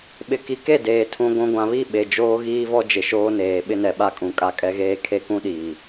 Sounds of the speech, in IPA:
ɓ ɪ˨ k i˨ k e˦˨ d eː˨ tʰ ũ˨ ɡʷ ũ˨ ɡʷ ã˨ β i˦˨ ɓ e˨ d͡ʒ oː˦ ɣ iː˦ v ɔ˦ d͡ʒ ɪ˨ ʃ oː˦ n eː˨ ɓ ɪ˦ n ɛ˨ ɓ a˦ kʼ ũ˨ kʼ a˦ kʼ ɛ˦ ɣ eː˦ kʰ e˦ k ũ˦ ɗ iː˨

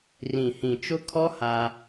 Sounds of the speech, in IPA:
r ĩ˨ h ĩ˨ t͡ʃ ʊ˦ kʰ ɔ˦ h a˦

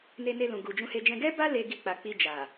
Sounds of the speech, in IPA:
n e˧ n e˧ l ũ˨ ɡ u˨ d͡ʒ ũ˧ h e˧ d͡ʒ ɛ̃˧ ɡ ɛ˦ b a˦ l e˧ ɡ i˧ k͡p a˨ k͡p i˧ d͡ʒ a˨

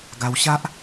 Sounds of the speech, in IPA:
ɡ a˧ w ɕ a˦ ʔ

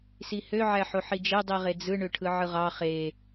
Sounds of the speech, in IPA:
s i h ø ʕ æ ħ o ħ i d͡ʒ e dˤ i ʁ e d͡z ɯ ɳ ø ʈʰ ɯ ʕ ɯ ʁ ɑ χ e

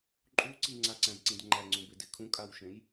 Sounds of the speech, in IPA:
ǃʼ u ǀ i ŋ͡ǀ a ǀ æ̃ b ǀ ĩ d ŋ͡ǃ æ ŋ͡ǀ ũ b e d e kʰ ũ kʼ a w ʃ ẽ j

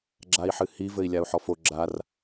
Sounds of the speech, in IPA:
ɡ͡ǁ a i̯ ħ ɨ h i v ɘ i̯ lʲ a u̯ ħ ɔ f o ɡ͡ǁ a r

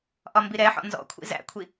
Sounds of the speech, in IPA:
ʔ ɒ m b i ɾ ɛ ħ ɔ̰ n z ɔ̰ kʷʰ ḭ z æ̰ kʷʰ i

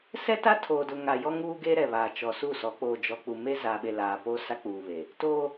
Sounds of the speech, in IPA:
s ɛ˦ t a˦ tʰ oː˨ d ʊ˨ ŋ a˨ j ɔ˦ ŋ uː˦ ɡ e˦ ɾ ɛ˨ β aː˨ t͡ʃ ɔ˨ s u˦˨ s ɔ˨˦ k͡p oː˨ d͡ʒ ɔ˨ k͡p u˨ m e˦ z aː˨ ɓ e˨ l aː˨ p o˦ s a˦ k͡p uː˨ β e˨ | t o˦

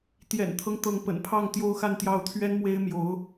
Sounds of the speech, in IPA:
t̪ j ɛ̰˨˩ n t̪ʰ ɤ˦ ŋ t̪ ɤ˧˥ ŋ p ə̰˨˩ n pʰ ɑ˥˩ ŋ t̪ j o˥ ʊ̯ x a˥˧ n t̪ j ɑ˥˩ ʊ̯ t̪ʰ ɥ ɛ˥ n m w e˥ ɪ̯ m j o˧˥ ʊ̯

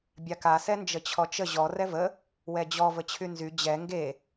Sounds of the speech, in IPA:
bʲ a k a s ɛ n d͡ʒ ə t͡ɕʰ ɔ t͡ʃ ə ʑ ɔ r ɛ v ə | w ɛ d͡ʑ ɔ v ə t͡ɕʰ y n z y d͡ʑ ɛ ŋ ɡ e

